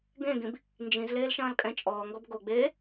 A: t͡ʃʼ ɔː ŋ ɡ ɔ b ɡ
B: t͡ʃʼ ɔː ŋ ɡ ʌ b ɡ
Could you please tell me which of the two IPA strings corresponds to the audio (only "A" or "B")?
A